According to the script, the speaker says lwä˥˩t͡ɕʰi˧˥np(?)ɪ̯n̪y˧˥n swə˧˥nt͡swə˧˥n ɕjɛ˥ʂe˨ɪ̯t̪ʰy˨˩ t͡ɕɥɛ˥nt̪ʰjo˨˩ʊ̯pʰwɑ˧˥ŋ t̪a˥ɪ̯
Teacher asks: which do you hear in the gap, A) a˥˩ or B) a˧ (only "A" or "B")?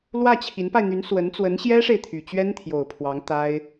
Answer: B